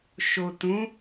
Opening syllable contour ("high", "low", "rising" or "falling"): low